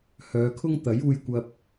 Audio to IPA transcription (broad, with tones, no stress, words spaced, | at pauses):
hœː˨˧kʰʊ˥ŋ t̪ɐ˨˥juː˧jkʷɐ˧p̚